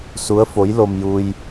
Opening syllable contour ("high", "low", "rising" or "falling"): rising